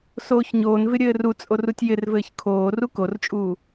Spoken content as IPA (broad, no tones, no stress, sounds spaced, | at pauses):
s oː ç ɲ oː n v ɪ ɾʲ ɘː r u t͡sʼ o r u tʲ j ɪ r v ɘː ç kʰ oː r u k o r t͡ʃʼ uː